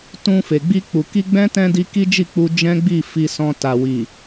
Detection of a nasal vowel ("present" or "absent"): present